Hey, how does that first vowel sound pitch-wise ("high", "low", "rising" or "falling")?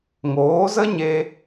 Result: rising